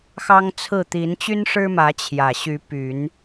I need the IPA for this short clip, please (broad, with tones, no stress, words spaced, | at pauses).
xɑ˦ŋt͡sʰɹ̩˥˨ t̪i˨˦nt͡ɕy˦nʂɻ̩˦ mä˨˦t͡ɕʰjä˨˩ɕy˨˦ py˨˦n